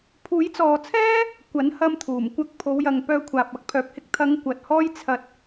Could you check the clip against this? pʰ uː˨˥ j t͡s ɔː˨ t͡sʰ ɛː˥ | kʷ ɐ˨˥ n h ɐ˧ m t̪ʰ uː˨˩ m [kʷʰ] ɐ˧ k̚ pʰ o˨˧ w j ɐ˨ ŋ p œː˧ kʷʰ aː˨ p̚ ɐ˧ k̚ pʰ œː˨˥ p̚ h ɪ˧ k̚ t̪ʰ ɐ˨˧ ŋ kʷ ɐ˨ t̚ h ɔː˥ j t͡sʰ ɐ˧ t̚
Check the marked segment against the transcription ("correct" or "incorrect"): incorrect